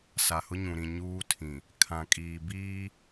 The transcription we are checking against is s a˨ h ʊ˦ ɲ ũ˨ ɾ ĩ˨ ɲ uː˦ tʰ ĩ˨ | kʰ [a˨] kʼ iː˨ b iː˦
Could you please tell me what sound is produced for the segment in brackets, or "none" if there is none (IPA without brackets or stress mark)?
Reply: ã˨